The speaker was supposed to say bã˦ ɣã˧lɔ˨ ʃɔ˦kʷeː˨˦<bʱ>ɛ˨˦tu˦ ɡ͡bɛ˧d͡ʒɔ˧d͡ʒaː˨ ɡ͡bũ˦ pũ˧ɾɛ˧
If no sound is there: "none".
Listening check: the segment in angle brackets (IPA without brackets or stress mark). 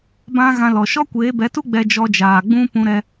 b